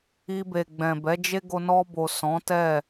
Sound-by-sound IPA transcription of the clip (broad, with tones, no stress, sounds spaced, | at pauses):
i˧ b e˨ ɡ͡b ɛ̃˨ b ɛ˨˦ d͡ʒ e˦ ɡ o˧ n ɔ˧ b o˨ s ɔ̃˨˦ t ɛ˦˨